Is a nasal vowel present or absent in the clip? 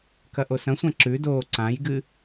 present